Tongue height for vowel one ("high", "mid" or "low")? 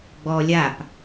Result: mid